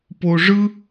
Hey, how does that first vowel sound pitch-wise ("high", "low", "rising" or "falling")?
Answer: high